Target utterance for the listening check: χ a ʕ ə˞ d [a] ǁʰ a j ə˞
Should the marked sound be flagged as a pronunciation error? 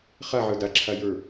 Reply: no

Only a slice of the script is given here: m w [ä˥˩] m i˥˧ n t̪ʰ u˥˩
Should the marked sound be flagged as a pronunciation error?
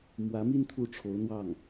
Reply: yes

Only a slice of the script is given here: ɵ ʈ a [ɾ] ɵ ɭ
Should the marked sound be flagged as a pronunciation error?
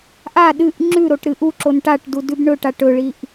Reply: yes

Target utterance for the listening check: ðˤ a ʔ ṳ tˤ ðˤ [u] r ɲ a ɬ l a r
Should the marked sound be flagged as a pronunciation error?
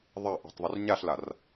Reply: no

